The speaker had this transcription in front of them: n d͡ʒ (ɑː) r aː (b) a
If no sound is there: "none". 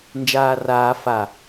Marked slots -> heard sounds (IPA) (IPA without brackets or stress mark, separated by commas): aː, f